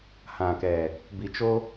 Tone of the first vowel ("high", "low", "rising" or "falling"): low